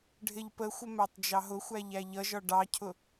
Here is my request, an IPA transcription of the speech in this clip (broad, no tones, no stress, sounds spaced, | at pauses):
ɖʱ ɪ ʎ p ə xʷ ə m æ tˤ d͡ʒ ɑ ɦ ʊ xʷ æ ʎ æ ʎ ʌ ʒ ɒ ɖ ɑ cʰ ʊ